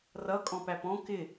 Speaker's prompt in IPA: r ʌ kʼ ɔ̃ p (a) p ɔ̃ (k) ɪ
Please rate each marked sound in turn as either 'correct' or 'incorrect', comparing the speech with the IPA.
incorrect, correct

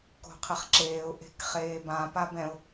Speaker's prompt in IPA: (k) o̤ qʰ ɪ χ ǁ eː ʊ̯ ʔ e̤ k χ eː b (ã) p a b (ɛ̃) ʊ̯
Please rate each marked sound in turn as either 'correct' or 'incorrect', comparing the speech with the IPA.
correct, correct, correct

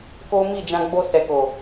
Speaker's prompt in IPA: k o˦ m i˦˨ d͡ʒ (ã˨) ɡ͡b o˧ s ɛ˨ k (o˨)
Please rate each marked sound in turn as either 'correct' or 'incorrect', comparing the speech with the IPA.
incorrect, correct

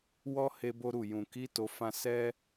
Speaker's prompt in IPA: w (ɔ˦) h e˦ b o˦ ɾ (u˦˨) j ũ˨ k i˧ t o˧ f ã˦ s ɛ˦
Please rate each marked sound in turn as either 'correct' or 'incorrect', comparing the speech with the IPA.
correct, correct

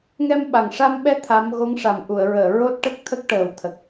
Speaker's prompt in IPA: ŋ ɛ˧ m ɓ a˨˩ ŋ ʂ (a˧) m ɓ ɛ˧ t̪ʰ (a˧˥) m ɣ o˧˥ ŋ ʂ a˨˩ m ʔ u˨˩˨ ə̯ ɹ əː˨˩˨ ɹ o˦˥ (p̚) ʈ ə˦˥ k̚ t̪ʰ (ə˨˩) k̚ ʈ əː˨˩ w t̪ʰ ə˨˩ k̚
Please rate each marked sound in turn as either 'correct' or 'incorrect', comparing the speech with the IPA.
correct, correct, incorrect, incorrect

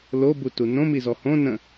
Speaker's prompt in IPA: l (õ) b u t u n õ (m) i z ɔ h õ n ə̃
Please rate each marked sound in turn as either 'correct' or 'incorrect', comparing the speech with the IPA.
incorrect, correct

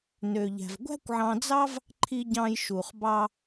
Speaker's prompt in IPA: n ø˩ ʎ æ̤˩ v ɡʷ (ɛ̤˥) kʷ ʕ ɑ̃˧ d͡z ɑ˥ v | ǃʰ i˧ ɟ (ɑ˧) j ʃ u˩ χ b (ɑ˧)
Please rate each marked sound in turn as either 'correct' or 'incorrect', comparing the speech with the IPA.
incorrect, incorrect, correct

